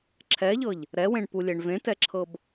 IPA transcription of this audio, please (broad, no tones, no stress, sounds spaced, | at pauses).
ǁʰ ɛ ʎ ɤ ʎ | ɾ ɛ w ẽ ɳ p u lʲ e ɳ v ẽ t ɛ ǁʰ ɤ b